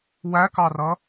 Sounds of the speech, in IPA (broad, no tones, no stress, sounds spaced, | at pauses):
w æ k ɑ r ʌ